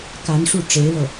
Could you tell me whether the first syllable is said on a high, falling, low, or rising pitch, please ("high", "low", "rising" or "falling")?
rising